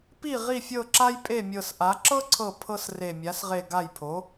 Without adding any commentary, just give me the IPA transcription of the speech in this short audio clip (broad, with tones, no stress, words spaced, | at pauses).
pi˥˩ ʁi˥˩fʲɤ˥˩ǁa˥j pʼe˥˩mʲɤ˧˩sʔa˩˥ ǁɤ˥ǀʰɤ˧˩ pʰɤ˥sre˧˩ mʲa˩˥sʁe˧˩ ɡa˥˩jpʰo˩˥